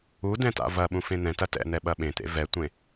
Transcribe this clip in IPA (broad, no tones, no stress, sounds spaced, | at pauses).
u d ɛ̃ t a̰ v ɐ ɓ ũ f ẽ n̪ ɛ̃ t ɐ t ɛ̰ n̪ ɛ ɓ ɐ ɓ ẽ t̪ ḛ v ɛ tʷ ẽ